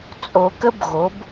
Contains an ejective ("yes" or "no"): yes